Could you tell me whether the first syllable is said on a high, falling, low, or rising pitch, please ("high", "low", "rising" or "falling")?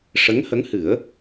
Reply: rising